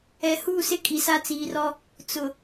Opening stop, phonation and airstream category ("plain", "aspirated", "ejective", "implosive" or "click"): ejective